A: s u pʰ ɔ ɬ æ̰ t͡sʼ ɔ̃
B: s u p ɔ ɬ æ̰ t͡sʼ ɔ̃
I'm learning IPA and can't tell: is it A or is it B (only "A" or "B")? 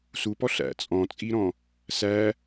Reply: B